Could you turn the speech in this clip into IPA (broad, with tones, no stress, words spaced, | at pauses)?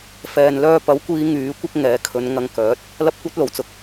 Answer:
fɛː˨nlœː˧pɐ˨˥wkʷiː˨˧ ŋyː˨˥ kʷɪ˥k̚ŋɛː˨˥kʰɵ˨˧n ŋɐ˧ŋkœː˨˥t̚ | lɐ˥p̚kʷɐ˥t̚lo˨˩wt͡sʊ˧k̚